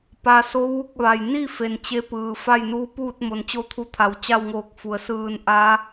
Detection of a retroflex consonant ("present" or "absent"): absent